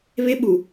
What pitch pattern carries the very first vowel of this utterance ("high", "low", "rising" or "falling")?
high